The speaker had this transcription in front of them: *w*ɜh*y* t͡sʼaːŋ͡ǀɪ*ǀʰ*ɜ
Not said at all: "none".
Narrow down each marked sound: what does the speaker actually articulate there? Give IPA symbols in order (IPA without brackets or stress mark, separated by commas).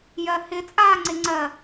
j, ɪ, ŋ͡ǀ